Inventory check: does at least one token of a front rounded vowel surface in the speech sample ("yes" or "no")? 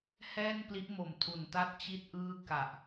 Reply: no